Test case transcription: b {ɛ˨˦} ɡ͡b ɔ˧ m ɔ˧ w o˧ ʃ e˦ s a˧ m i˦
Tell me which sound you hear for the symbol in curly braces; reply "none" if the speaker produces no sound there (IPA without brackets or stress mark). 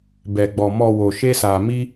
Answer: ɛ˧